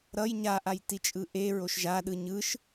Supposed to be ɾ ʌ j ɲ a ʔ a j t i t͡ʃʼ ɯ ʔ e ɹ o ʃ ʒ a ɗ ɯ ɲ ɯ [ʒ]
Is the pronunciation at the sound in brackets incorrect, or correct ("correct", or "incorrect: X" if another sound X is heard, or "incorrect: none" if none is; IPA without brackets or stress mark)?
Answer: incorrect: ʃ